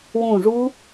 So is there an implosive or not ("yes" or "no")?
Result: no